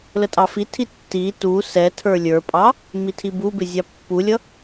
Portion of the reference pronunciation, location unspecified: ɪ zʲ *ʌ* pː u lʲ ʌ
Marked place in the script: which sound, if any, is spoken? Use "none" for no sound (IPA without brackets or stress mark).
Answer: ɑ